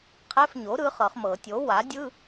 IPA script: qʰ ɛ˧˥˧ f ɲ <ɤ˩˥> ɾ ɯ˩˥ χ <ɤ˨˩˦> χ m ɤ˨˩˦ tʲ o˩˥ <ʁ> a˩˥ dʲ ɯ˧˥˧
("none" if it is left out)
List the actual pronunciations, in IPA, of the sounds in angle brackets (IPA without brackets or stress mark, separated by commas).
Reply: o˩˥, ɤ˨˩˦, w